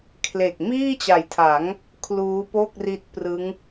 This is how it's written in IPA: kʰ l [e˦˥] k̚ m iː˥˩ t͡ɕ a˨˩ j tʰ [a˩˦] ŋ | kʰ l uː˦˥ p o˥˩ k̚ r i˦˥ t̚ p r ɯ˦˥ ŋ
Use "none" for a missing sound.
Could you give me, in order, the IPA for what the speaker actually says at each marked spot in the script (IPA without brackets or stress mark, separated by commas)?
e˨˩, a˩˦